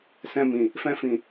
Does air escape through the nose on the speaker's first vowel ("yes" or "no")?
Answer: yes